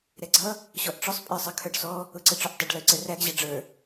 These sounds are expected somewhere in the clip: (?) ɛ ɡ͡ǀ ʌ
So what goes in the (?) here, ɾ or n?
ɾ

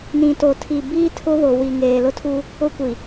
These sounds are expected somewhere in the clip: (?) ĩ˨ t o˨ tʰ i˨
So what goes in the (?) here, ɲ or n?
n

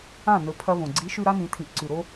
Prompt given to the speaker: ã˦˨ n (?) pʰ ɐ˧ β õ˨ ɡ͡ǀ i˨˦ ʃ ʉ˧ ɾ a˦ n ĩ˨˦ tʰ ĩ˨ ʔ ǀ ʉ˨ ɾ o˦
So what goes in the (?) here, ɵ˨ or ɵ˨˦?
ɵ˨˦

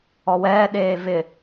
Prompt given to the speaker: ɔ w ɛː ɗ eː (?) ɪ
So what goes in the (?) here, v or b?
v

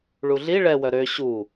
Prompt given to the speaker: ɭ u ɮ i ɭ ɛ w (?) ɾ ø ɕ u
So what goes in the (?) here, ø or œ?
œ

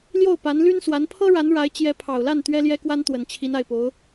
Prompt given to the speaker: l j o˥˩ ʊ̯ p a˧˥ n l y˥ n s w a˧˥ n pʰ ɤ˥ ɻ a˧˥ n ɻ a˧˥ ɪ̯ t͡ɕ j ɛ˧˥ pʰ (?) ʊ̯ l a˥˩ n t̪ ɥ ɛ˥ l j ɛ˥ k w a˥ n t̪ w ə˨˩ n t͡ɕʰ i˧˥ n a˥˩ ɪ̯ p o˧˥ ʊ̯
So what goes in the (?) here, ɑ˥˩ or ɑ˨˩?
ɑ˨˩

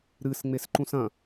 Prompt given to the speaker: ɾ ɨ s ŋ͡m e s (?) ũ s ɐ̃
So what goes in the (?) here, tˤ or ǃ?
ǃ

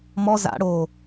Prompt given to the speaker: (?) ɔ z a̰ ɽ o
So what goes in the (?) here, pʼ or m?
m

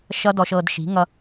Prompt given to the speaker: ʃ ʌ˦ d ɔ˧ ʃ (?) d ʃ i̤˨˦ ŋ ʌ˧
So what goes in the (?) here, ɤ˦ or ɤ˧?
ɤ˧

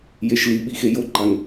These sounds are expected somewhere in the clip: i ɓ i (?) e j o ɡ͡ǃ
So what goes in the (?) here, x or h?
x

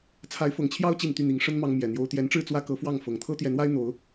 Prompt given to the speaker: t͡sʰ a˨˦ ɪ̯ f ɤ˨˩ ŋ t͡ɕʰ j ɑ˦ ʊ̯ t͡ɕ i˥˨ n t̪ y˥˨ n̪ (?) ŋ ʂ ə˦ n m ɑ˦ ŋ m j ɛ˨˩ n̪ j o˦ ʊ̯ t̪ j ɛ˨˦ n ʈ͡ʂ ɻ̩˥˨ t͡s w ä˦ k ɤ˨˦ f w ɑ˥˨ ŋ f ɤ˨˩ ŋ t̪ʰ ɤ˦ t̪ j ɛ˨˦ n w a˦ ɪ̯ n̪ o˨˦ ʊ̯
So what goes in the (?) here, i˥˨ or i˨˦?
i˨˦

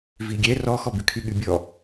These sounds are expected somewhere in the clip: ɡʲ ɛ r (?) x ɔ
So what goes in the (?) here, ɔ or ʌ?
ɔ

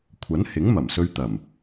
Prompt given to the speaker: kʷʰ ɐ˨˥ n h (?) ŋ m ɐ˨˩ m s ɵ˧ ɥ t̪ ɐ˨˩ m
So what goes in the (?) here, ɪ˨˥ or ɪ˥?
ɪ˨˥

